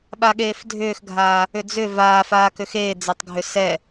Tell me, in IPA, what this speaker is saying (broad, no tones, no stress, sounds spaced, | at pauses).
ɓ a ɠ eː f dʱ ʏː x ɡʱ aː | ʏ d͡z ʏ v aː f aː k ʏ x eː d͡z e tˤ ɡʱ ʏ s ɛ